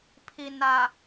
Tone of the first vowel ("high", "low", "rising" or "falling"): low